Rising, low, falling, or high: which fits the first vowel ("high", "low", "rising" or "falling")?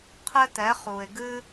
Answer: high